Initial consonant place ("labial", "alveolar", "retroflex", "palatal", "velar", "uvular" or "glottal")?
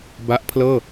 labial